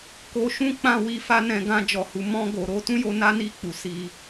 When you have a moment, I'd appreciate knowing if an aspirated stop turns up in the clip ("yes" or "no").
no